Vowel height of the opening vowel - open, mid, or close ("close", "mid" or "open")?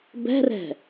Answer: mid